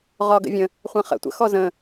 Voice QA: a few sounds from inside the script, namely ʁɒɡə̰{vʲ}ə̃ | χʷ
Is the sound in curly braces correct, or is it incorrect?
correct